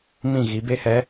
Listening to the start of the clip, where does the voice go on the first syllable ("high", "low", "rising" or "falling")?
falling